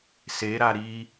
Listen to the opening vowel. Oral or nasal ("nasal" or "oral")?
oral